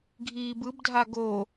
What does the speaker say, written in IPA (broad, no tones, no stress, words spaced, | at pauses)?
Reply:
ɡʱiːbɯbdʱa ɡo